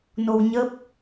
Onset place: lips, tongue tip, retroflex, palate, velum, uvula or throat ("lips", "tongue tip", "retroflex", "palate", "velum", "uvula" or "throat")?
tongue tip